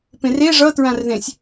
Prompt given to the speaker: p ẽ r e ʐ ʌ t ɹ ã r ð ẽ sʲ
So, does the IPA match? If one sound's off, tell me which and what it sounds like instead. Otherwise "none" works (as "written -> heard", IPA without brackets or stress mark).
none